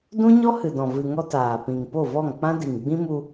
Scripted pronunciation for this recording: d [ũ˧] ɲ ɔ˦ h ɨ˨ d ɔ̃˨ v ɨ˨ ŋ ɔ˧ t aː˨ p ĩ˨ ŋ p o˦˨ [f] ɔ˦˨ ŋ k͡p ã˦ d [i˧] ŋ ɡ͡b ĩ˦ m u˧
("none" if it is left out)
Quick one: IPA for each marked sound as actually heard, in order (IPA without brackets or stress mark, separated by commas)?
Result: ũ˦, v, i˨